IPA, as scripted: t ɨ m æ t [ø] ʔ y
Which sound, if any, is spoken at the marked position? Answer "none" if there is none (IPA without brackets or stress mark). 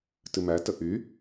ə